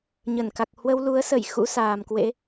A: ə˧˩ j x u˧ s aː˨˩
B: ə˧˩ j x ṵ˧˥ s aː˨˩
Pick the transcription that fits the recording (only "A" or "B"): B